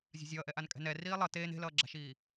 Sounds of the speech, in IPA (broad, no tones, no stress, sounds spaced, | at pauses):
zʲ a̤ zʲ ʌː ʔ ɛ ʔ a n kʼ ɛ̤ n ɛ r iː lˠ ʌ t eː n e̤ l ʌː ɡ͡ǁ a̤ ʃ iː